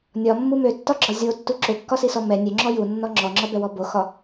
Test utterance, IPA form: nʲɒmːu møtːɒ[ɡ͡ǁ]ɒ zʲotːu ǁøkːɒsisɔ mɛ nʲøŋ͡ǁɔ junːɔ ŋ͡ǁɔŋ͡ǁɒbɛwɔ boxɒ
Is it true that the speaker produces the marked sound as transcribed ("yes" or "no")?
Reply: yes